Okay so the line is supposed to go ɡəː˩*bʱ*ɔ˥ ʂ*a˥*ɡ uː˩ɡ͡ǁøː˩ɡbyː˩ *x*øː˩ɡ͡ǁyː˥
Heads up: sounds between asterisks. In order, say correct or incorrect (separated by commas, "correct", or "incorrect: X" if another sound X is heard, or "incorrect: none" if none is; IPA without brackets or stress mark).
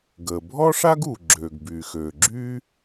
correct, correct, correct